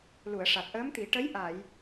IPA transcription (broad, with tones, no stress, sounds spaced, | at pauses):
l u˨˩˨ ə̯ ʂ a˨˩ t̚ ʔ əː˧˥ m t̪ i˨˩˦ ʈ ə˧˥ j ʔ a˨˩˨ j